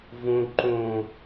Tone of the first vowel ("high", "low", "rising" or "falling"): low